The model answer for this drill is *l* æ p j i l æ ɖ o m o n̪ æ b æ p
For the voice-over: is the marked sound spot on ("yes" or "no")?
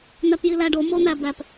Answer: no